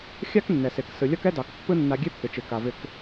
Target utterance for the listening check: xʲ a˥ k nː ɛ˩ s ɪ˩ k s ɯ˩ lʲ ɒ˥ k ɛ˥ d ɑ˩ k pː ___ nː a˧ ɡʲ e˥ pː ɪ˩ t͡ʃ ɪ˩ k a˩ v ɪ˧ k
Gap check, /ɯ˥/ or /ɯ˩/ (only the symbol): ɯ˥